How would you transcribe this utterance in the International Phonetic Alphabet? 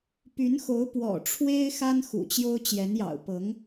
p y˧˥ n x o˧˥ ʊ̯ p w ɔ̰˨˩ ʈ͡ʂʰ w e˥ ɪ̯ x a˥ n x ṵ˨˩ t͡ɕ j o˥ ʊ̯ t͡ɕ j ɛ˧˥ n j ɑ̰˨˩ ʊ̯ p ɤ˧˥ ŋ

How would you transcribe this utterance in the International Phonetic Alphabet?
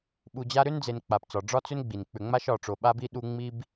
ɓ u˨ d͡ʑ a˦ ɾ ʏ˥ n d͡z e˨ n k͡p a˩ p t͡s ɒ˩ ɖ͡ʐ ɒ˥ t͡s ʏ˥ n ɡ͡b i˩ n k͡p ʏ˨ ŋ͡m a˦ ʃ ɒ˨ ʈ͡ʂ o˨ ɓ a˥ b i˥ ɗ u˦ ŋ͡m i˦ b

